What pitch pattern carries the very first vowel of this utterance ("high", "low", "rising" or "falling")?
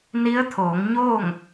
rising